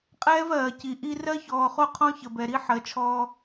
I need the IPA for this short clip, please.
qʼ ɛː˦ v ɜː˨ c i˨ ʔ i˦ r ɜ˦ ç ɔː˨ χ o˦ qʰ ɔ̃˦ ç ə˨ b ɛ˨ ɾ i˦ ħ ɜ˨ t͡ʃʰ ɔː˦

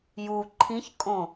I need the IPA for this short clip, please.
j u ǃʰ ĩ ç kʼ õ

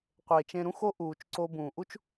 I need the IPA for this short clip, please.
qʷ eː˨ t͡ʃ ẽ˧ ɾ ũ˦ x o˦ ʔ uː˨ t͡ʃ ǀ o˧ b ũː˨ ʔ u˦ t͡ʃ

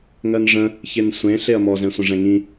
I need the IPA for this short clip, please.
ŋ ɜ n ʐ ə̃ | ç e n sʷ ẽ ɬ e ɐ̯ m ɔ z ɛ̃ sʷ ə̃ ʐ ɛ̃ ŋ ĩ

